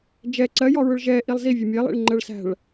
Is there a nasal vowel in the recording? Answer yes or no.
no